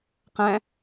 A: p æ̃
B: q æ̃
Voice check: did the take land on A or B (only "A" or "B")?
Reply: B